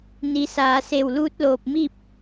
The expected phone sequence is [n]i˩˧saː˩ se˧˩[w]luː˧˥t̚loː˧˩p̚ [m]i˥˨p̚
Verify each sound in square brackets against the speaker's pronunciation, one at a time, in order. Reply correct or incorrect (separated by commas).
correct, correct, correct